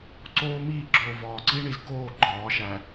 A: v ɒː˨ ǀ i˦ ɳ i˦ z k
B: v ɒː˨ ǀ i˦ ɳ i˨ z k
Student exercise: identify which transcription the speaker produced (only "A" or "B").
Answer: B